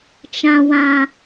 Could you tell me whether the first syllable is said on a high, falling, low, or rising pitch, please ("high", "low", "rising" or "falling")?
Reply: low